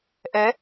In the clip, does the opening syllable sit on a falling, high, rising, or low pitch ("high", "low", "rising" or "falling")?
rising